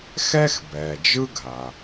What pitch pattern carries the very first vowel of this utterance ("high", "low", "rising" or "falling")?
high